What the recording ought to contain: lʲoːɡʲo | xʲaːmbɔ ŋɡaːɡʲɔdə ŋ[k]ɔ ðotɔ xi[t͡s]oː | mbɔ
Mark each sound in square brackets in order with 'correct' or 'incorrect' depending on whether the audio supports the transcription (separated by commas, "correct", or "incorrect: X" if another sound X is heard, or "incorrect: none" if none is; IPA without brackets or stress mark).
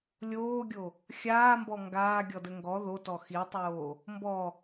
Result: incorrect: ɡ, incorrect: tˤ